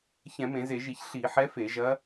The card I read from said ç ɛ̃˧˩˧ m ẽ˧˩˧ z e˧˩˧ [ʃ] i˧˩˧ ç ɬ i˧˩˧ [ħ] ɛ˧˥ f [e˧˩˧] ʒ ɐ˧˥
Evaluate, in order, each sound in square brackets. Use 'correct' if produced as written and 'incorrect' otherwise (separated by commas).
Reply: incorrect, correct, correct